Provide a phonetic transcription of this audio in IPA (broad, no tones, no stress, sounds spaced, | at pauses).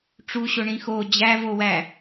ʈ͡ʂ u ɕ o ɳ ĩ x o d͡ʑ æ v o w æ